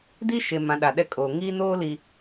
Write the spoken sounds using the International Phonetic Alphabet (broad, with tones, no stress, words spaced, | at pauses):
di˦ʃe˨ mã˨˦ɗa˨ɗɛ˦˨kʼoː˨ ŋiː˦noː˦li˨